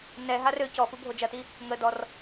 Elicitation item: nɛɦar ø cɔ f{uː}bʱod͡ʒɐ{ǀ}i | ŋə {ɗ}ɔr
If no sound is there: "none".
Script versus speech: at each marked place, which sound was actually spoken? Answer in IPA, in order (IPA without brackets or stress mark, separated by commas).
u, t, d